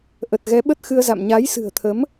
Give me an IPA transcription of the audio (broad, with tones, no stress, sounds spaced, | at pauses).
ʔ ə˨˩ t̚ ɣ ɛ˨˦ ɓ ə˦˥ t̚ x ɨ˧ ə̯ z a̰˧˨ m ɲ a˨˦ j s ɨ̤˨˩ ə̯ t̪ʰ ə˨˦ m